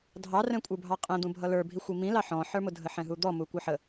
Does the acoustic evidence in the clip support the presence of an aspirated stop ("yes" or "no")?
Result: no